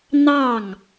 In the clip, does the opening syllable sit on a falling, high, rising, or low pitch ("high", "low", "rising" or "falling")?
falling